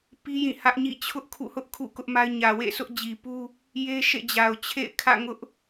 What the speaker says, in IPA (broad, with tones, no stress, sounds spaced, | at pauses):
p i˦ j ĩ˦˨ h ä˦ ʔ ɲ ḭ˦˨ t͡ɕʰ ʊ˦ ʔ kʰ ṵ˦˨ h ʊ˦ ʔ kʰ ṵ˦˨ k ʊ˦ ʔ m a˦ ɪ̯ ɲ ä˨ w ḛ˦˨ s ʊ˦ ʔ d͡ʑ i˨ p u˦ | j e˦ ʃ ḛ˦˨ d͡ʑ a˨ ʊ̯ t͡ɕʰ ḛ˦˨ ɪ̯ kʰ ä̰˦˨ ŋ ʊ˦ ʔ